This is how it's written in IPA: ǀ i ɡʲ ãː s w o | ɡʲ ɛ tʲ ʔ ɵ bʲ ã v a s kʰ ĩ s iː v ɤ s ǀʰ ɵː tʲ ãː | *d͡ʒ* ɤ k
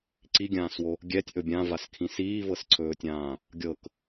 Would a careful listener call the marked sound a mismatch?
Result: yes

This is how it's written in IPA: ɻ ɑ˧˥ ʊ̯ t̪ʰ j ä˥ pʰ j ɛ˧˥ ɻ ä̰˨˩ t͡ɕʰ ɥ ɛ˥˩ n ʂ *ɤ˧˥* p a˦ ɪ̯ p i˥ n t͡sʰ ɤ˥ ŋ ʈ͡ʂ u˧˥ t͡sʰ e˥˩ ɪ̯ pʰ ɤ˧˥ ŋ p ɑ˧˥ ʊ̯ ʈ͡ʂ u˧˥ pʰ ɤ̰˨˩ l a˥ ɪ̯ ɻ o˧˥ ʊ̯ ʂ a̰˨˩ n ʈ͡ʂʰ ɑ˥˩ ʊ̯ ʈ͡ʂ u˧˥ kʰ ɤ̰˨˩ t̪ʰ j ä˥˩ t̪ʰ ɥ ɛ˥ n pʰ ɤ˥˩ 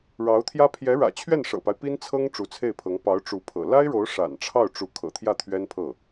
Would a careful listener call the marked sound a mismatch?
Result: yes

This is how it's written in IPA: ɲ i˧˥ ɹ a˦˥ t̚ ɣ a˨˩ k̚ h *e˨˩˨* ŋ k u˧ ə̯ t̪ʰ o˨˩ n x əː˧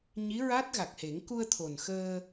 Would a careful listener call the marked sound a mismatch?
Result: yes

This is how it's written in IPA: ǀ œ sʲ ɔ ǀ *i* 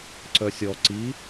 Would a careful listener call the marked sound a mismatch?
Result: no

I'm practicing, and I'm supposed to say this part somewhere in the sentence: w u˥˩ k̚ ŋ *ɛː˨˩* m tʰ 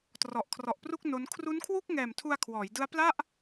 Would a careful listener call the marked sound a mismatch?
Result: no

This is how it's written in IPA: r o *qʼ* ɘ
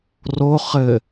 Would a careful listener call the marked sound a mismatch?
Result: yes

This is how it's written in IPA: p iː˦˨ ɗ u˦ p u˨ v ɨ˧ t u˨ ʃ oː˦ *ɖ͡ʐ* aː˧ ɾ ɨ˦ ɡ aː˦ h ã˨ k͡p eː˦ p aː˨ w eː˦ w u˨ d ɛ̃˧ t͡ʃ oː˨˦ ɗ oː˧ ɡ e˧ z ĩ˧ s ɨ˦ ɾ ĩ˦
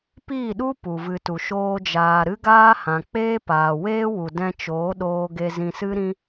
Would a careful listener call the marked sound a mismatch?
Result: yes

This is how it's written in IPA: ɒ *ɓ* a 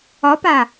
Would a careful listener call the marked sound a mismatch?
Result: yes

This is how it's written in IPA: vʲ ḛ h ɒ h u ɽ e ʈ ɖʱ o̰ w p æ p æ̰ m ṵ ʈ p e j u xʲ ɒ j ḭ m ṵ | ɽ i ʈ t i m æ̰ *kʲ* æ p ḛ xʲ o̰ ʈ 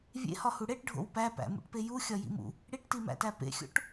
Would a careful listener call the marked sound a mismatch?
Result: yes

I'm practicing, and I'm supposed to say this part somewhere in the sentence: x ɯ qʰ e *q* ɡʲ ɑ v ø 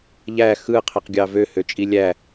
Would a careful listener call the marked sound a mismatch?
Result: no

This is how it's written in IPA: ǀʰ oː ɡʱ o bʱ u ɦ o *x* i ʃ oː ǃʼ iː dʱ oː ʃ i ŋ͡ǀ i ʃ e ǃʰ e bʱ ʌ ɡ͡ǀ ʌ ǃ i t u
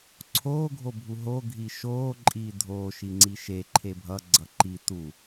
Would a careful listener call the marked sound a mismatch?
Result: yes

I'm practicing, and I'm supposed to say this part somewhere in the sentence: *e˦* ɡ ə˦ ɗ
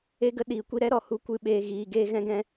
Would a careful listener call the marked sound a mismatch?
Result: no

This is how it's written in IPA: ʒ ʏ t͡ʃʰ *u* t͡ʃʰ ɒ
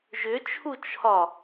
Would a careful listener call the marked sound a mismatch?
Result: no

